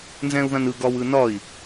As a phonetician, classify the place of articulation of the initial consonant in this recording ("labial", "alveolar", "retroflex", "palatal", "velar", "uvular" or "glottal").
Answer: alveolar